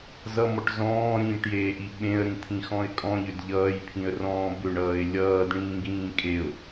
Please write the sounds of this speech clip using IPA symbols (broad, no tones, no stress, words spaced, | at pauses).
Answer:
zʌmɔʈ zɔ̃ːɾĩːʈjeːʔi ɓẽə̯ɾĩt̪ʰĩxɔ̃ɪ̯ kʼɔ̃ʎʏd ʎʌːjpʰĩə̯rɔ̃ː bʏɳʌːɪ̯ lʲʌːdɳĩːɡĩː kʼeʊ̯